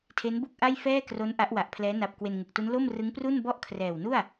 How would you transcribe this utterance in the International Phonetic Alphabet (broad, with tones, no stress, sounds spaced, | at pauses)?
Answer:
tʰ e˦˥ n b u˥˩ k̚ ʔ a˥˩ j f ɛː˥˩ k r o˦˥ n ʔ a˦˥ ʔ w a˨˩ ʔ pʰ l ɛː˦˥ n a˨˩ p̚ k w e˧ n ŋ ɯ˨˩ k̚ t u˦˥ n l o˥˩ m r ɯ˦˥ ŋ p r u˥˩ n b ɔ˥˩ ʔ kʰ r ɛː˨˩ w n u˥˩ a̯